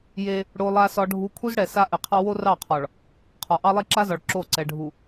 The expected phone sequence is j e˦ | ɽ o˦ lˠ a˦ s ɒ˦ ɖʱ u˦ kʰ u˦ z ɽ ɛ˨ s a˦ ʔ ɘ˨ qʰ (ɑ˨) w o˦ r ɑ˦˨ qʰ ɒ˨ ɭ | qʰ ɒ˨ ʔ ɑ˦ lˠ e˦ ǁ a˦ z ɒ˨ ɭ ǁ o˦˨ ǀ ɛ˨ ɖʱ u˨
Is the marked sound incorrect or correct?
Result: incorrect